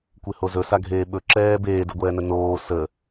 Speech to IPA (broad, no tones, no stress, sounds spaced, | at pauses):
kʷ e h o z ɵ s a ɡʱ eː ɓ ɵ ǁ ɛː b eː d ə ɡʷ ɛː n ə n oː s ə